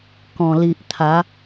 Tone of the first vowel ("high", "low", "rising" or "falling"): low